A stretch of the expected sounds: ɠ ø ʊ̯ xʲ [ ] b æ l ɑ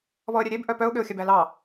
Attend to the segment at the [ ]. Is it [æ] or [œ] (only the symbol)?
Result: œ